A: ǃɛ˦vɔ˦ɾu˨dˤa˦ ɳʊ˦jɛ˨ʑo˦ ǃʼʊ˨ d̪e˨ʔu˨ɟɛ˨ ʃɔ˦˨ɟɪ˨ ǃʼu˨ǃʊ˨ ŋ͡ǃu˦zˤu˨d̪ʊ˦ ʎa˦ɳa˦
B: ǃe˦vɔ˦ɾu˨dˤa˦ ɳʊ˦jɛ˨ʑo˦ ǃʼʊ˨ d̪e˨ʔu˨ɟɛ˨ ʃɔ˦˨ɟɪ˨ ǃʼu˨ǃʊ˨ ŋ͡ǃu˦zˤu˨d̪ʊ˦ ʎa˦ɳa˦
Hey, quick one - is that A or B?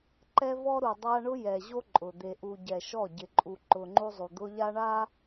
A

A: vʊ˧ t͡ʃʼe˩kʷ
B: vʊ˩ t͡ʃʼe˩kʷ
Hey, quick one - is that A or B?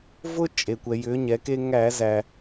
A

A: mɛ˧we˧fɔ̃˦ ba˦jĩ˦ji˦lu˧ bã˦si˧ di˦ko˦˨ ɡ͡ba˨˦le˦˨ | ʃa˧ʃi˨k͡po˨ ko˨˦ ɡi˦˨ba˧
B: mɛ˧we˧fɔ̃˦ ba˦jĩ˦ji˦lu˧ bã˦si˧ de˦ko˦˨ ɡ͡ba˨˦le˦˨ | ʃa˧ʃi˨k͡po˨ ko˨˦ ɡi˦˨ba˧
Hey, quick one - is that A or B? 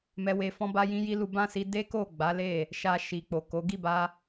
B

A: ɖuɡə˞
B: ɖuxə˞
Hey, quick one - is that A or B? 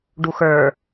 B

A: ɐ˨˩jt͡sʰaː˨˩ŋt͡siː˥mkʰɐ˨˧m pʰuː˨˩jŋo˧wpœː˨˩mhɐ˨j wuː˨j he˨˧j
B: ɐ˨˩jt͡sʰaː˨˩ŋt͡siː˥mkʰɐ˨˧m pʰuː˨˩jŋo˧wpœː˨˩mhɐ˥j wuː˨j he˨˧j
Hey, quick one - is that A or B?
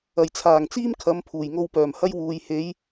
B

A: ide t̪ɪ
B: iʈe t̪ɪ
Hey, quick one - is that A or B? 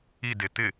A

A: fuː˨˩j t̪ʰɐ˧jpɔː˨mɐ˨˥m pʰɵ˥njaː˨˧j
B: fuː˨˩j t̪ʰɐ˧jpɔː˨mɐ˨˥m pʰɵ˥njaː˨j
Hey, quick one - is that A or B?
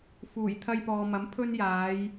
A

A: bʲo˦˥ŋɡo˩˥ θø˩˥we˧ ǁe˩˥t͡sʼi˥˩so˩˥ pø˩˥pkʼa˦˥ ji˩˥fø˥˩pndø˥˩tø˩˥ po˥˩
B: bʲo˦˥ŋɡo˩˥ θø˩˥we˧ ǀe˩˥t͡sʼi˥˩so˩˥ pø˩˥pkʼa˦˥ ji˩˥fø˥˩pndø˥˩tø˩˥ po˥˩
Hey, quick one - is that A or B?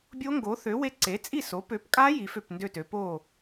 B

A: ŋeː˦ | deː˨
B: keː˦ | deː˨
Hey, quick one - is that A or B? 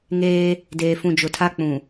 A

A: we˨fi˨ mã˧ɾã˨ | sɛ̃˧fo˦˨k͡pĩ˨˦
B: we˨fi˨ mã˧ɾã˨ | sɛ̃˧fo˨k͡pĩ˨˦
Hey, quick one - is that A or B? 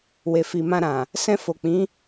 B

